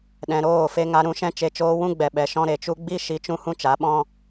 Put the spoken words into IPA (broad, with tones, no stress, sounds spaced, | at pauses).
ɗ ɛ̃˨ ɾ oː˦˨ f e˧ ŋ a˧ ɾ ũ˧ ʃ ɛ̃˦ t͡ʃ e˧ t͡ʃ oː˦ w ũ˦ ɡ͡b ɛ˨ ɓ ɛ˨ ʃ ɔ̃˦ ɾ e˨ t͡ʃ u˧ ɡ͡b i˦ ʃ i˨˦ t͡ʃ ũ˧ h ũ˦ t͡ʃ a˨˦ ɓ ɔ̃˦